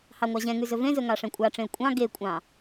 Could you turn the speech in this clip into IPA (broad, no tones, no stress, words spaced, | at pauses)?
hɑŋʷɑʑɛ̃ŋʉ zɵvẽzɵ ŋɑʂɛ̃kʷʼɑʈ͡ʂẽə̯ kʷʼɑ̃ ɡekʷʼɑ̃